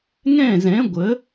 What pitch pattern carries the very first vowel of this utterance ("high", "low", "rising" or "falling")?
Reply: falling